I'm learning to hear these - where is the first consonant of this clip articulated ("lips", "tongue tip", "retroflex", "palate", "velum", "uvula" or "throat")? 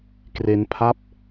velum